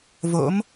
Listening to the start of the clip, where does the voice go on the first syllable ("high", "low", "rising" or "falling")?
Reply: rising